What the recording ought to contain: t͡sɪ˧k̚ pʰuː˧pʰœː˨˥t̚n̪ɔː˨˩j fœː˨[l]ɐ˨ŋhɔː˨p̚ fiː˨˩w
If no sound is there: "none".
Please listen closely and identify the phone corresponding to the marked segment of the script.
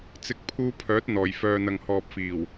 n̪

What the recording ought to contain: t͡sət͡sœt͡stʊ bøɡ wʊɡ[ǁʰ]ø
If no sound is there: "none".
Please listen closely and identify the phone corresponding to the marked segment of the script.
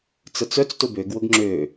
ŋ͡ǁ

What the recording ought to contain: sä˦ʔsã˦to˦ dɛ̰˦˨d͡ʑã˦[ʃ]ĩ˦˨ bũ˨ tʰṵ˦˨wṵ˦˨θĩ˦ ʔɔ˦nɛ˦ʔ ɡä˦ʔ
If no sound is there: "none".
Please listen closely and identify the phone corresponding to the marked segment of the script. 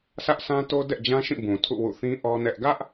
ʃ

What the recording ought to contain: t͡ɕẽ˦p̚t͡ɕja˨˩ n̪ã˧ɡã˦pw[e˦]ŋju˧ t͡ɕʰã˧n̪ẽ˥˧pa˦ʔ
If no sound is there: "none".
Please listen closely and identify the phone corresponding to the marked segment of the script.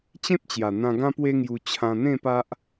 e˦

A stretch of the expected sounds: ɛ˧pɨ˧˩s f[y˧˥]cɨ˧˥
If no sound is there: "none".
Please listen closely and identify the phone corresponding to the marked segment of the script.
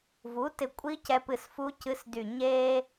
u˧˥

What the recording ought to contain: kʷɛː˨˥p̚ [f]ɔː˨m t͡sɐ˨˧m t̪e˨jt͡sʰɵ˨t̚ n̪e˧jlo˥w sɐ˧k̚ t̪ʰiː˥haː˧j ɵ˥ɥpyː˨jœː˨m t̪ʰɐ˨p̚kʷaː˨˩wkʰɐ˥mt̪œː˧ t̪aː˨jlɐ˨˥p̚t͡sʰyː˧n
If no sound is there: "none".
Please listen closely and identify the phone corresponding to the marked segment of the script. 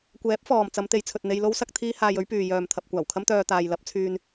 f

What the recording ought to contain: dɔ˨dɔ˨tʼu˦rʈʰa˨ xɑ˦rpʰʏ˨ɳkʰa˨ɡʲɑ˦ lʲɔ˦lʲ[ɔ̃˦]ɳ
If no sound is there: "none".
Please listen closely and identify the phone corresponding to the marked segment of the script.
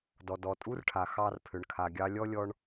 ɔ˦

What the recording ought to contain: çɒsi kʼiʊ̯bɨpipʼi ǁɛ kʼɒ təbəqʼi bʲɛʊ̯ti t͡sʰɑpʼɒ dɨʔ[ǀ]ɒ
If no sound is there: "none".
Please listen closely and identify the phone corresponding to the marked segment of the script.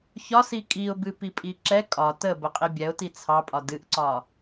ǀ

